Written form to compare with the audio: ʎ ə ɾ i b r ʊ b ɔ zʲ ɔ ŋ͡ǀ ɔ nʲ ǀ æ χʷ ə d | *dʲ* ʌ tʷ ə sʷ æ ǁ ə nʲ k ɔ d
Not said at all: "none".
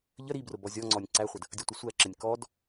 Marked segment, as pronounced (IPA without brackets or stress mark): dʲ